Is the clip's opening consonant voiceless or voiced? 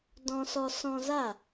voiced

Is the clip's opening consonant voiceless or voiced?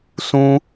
voiceless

